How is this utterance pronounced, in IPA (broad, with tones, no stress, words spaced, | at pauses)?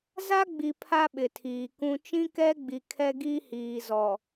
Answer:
za˦ɡ͡bi˨ pʰa˦ɓɪ˨ tʰiː˨kũ˦ t͡ʃĩ˦kɛ˦ɡ͡bi˨ kʰɛ˦ɡi˦hiː˨zɔ˨